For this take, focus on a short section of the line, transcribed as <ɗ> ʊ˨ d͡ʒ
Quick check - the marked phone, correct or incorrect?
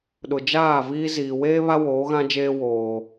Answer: correct